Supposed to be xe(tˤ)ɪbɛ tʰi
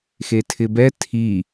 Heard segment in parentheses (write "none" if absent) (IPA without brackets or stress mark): tʰ